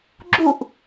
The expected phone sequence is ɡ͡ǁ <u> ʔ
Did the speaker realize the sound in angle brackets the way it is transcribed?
yes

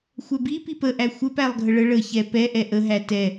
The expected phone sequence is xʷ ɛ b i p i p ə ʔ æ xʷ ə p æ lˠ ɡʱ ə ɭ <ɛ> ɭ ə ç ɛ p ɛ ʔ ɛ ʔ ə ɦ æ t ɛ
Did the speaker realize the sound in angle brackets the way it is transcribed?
no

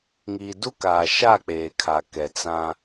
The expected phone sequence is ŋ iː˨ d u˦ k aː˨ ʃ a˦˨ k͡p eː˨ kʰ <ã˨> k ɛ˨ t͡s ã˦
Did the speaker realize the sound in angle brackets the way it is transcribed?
no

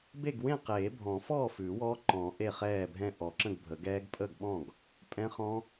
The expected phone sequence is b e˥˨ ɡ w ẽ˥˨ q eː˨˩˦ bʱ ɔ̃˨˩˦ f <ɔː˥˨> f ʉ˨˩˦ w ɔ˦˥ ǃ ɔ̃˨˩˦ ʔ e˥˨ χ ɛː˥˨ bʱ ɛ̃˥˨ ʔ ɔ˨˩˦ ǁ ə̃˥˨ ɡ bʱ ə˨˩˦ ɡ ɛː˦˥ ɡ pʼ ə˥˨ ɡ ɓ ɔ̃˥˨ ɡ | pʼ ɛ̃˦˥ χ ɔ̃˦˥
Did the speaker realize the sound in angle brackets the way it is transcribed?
yes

